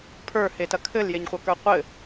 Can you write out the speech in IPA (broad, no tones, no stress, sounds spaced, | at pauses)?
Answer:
pʰ ə˞ h e t ɐ kʰ ɘ l j e ɲ χʷ ɐ k ə˞ qʷ ɘ